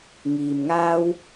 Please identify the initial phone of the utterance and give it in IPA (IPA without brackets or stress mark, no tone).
ŋ